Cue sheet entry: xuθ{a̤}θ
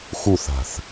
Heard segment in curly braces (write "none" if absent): a̤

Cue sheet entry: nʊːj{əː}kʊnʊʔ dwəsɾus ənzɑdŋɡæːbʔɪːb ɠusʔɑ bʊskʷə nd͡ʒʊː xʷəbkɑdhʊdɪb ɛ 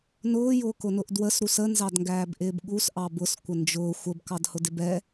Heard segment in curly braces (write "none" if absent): ʊː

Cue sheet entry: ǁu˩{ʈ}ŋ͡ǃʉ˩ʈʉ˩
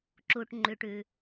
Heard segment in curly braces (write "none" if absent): ʈ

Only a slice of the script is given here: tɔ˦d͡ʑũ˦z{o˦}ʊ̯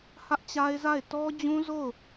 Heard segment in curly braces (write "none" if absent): o˦˨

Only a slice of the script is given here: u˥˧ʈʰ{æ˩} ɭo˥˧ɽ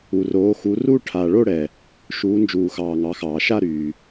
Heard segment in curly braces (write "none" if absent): a˩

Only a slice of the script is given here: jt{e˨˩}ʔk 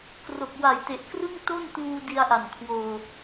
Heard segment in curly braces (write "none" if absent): e˨˩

